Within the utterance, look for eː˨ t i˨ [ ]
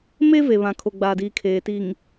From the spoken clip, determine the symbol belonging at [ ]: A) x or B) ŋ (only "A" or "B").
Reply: B